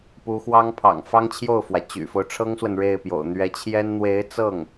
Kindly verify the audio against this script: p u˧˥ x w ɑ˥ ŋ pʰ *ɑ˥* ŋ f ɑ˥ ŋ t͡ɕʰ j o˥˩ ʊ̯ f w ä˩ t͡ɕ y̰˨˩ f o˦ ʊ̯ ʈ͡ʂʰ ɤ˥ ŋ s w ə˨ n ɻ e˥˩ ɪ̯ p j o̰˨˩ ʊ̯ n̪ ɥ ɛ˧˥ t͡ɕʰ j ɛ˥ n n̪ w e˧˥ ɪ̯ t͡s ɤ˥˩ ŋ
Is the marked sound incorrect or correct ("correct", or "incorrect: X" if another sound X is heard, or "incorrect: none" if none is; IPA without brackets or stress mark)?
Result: incorrect: ɑ̰˨˩